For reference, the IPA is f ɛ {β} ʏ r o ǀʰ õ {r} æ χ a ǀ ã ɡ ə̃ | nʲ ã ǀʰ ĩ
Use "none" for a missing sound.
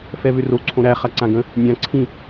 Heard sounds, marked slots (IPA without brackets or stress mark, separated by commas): β, ɾ